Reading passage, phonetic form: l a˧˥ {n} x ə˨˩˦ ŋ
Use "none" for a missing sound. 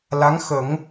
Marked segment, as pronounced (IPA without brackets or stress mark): ŋ